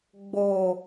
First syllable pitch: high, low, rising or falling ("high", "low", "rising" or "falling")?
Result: low